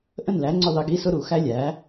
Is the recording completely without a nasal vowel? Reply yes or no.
no